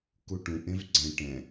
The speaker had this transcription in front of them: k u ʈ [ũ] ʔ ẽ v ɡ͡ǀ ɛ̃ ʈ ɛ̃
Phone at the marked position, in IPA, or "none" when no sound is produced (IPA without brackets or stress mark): ũ